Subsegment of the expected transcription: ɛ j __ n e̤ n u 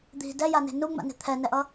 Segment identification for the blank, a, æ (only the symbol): a